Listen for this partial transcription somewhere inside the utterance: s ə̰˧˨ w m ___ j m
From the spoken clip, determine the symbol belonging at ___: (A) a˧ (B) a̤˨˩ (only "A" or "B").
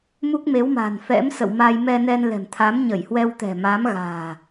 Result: A